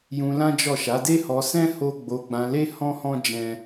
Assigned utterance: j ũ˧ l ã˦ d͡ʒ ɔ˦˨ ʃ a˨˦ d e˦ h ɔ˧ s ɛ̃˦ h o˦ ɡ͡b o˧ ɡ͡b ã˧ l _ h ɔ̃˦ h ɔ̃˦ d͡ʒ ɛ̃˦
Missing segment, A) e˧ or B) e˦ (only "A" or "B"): B